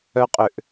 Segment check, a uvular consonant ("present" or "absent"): present